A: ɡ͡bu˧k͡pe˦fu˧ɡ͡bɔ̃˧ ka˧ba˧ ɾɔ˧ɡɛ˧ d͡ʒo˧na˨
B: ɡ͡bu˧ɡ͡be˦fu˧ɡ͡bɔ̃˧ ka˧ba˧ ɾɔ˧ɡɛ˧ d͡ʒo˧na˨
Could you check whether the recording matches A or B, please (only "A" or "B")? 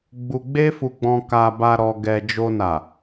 B